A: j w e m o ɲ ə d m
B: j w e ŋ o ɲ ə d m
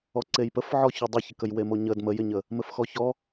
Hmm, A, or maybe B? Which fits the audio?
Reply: A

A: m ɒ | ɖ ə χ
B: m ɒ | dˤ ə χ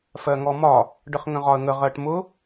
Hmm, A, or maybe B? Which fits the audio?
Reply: A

